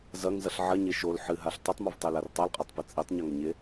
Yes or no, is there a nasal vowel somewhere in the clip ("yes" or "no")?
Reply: no